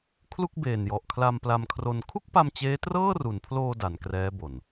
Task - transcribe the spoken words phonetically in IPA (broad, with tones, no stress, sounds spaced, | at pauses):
kʰ l u˥˩ k̚ b eː˨˩ n j ɔ˨˩ ʔ kʰ l a˧ m p l a˧ m kʰ r o˧ n kʰ u˥˩ k̚ p a˧ m t͡ɕ eː˦˥ t r ɤː˥˩ r u˩˦ n pʰ l oː˧ d a˩˦ n k r ɛː˦˥ b o˨˩ n